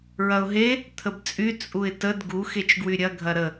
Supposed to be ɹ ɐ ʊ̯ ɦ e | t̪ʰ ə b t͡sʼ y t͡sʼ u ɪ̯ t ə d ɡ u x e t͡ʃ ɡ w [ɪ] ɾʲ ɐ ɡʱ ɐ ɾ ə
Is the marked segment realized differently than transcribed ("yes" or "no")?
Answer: yes